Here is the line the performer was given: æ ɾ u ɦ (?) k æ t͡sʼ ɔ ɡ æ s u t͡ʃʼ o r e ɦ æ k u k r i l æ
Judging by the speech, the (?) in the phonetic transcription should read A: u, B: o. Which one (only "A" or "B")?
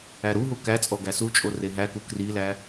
A